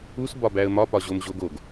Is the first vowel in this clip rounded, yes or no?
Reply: yes